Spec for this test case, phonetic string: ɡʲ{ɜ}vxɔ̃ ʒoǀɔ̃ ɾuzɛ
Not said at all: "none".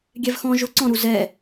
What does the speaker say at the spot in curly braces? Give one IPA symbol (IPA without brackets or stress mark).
ɛ